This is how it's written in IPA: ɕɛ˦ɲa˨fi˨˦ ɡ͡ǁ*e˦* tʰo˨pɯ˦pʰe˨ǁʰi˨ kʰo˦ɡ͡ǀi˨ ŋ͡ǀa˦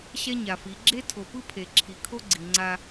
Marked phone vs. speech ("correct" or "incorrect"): correct